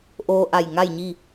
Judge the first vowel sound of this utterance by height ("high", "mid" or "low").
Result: mid